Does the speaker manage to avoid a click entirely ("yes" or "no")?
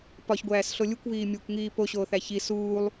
yes